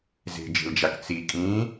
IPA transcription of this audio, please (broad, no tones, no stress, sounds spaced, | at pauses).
z e̤ d͡ʒ e̤ l d͡ʒ a k t͡s i kʼ ĩː